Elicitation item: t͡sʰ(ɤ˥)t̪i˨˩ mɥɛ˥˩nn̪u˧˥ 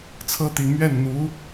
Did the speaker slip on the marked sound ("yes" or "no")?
no